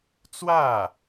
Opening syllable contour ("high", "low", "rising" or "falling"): falling